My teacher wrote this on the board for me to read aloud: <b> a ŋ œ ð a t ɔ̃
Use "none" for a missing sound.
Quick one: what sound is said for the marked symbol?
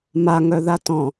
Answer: m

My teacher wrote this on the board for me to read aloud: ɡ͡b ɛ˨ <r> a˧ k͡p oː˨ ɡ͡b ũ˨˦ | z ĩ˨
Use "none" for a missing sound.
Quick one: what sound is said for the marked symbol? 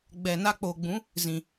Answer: n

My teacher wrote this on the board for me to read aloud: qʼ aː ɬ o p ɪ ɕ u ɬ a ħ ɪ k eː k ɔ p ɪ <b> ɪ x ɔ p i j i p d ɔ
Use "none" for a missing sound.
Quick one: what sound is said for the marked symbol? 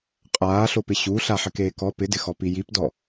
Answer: d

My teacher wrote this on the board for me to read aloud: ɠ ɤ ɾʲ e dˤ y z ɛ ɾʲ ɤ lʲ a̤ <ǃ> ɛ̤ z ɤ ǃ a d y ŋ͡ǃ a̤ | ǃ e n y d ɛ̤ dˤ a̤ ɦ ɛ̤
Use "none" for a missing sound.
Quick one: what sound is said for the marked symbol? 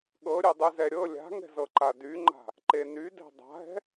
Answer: ŋ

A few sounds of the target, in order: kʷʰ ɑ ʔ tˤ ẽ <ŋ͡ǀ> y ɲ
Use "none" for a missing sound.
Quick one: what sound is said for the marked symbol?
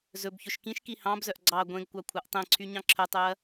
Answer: ǀʰ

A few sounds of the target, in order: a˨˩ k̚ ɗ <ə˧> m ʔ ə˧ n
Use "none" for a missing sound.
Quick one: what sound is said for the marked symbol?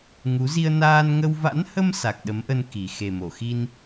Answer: ə˨˦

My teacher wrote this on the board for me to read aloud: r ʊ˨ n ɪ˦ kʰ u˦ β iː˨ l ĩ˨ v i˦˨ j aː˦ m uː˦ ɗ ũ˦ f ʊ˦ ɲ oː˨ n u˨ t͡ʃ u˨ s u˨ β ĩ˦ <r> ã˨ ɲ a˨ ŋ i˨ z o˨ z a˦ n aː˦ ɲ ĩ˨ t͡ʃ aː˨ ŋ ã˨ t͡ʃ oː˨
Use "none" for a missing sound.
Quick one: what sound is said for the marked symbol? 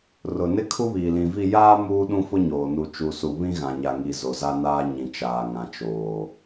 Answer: ɣ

